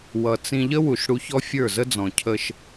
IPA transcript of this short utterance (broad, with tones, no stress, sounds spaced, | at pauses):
w ʌ˨ t͡s ĩ˧ ʎ ə˦ w u˨ ʃ ɽ u˧ ç ɔ˦ fʲ ə˞˦˨ z ə˦ d͡z ɔ̃˨ cʰ ə˧ ʃ